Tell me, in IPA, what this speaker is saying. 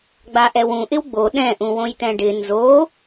ɡ͡b a ʔ ɛ w ũ ʔ ɪ w ɡ͡b o ɗ ɛ̃ ʔ ũ w õ j t ɛ̃ ɖ ɪ n z o

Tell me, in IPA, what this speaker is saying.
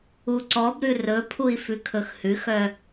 u ǀ ɔ b ɾ ʉ r ɵ pʰ u i̯ f ʉ kʰ ɵ x h ʉ x œ

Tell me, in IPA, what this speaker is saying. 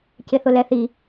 c ɪ θ ʊ l ɛ θ i

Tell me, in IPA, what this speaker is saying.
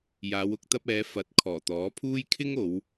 j aː˨˧ w ʊ˧ k̚ t̪ ɐ˧ p̚ ɛː˨˧ f ɐ˨˥ t̚ kʰ ɔː˨˩ t̪ ɔː˨˥ pʰ uː˥ j kʰ ɪ˥ ŋ o˨˧ w

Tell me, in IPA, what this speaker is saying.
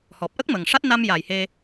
h ɔ˨˩ p̚ ʔ ə˦˥ k̚ m ə˨˩ ŋ ʂ a˦˥ t̚ n a˧ m j a˨˩ j h e˧

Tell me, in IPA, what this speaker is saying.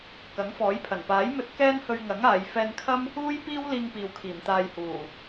k ɐ˨˥ ŋ f ɔː˨˥ j pʰ ɐ˨˩ n p aː˨˥ j m ɵ˧ t̚ k ɛː˥ n h ɵ˧ ɥ ŋ ɐ˨˥ ŋ aː˨˧ j f ɛː˧ n kʰ ɐ˥ m | uː˥ j p iː˥ w l iː˥ ŋ p iː˨ w kʰ iː˨˩ m t̪ aː˧ j h uː˨˩

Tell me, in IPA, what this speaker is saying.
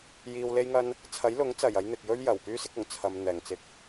j iː˧ w l e˥ j ŋ ɐ˥ n | t͡sʰ ɐ˨˥ j l ʊ˨˥ ŋ t͡s ɐ˨˩ j ɐ˨˧ j n̪ ɪ˨ k̚ j ɵ˥ ɥ j ɐ˨˩ w p yː˥ s ɪ˥ k̚ ʊ˨˩ ŋ t͡sʰ ɐ˨ m n̪ ɛː˨˩ ŋ t͡s ɪ˨˥ k̚

